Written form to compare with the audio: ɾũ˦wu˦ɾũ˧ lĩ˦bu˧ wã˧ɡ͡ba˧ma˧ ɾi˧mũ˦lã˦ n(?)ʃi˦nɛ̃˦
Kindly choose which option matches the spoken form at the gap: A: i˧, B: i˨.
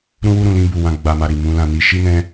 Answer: A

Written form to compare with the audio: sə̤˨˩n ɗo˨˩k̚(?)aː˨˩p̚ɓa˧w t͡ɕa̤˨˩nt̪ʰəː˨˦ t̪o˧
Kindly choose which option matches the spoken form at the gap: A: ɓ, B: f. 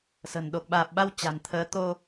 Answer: A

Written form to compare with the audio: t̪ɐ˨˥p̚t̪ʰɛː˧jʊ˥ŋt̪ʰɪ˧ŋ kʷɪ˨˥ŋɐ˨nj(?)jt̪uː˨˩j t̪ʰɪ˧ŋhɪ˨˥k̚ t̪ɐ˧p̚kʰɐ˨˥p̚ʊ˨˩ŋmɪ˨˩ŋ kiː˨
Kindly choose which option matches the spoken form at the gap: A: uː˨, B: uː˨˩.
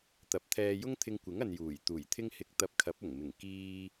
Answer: B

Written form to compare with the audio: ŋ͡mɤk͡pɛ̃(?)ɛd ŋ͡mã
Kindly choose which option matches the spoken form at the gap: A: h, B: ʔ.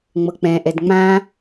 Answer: B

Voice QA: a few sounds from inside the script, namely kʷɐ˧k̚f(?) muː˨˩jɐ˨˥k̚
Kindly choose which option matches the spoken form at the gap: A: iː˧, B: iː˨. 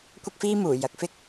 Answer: A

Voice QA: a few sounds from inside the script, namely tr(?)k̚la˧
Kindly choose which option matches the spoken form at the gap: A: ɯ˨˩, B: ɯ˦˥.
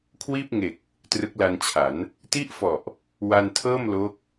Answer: B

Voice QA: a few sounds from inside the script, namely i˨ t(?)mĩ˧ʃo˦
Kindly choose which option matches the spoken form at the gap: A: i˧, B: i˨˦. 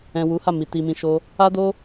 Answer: A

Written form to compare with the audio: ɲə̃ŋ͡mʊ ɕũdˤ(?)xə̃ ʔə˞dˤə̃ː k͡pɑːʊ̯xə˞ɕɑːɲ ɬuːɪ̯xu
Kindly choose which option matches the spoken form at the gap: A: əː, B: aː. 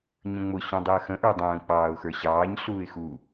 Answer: A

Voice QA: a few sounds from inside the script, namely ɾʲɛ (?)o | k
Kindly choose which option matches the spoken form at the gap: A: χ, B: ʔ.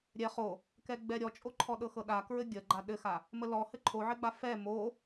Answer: A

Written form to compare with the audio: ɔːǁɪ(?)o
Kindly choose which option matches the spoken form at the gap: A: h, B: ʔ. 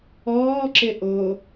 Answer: B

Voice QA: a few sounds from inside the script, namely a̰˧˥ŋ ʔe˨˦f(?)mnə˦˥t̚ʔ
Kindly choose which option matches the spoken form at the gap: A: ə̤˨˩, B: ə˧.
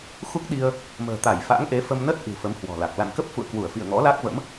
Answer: B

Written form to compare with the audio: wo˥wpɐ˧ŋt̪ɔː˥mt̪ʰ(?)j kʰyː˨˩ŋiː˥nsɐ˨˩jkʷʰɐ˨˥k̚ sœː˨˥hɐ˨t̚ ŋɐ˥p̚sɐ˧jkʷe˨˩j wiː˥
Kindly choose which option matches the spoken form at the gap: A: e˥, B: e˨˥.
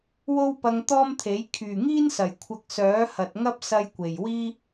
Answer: B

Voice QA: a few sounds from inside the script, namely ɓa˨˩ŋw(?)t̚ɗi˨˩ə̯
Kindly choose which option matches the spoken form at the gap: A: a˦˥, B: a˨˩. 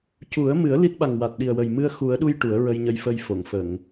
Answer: B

